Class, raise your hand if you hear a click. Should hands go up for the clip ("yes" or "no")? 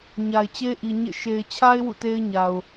no